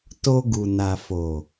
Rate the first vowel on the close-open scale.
mid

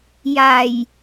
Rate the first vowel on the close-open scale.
open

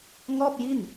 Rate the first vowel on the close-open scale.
mid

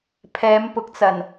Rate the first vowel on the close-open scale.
mid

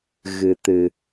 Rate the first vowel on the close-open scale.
close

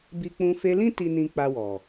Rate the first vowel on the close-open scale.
close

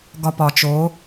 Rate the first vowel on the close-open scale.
open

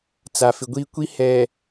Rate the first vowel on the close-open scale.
open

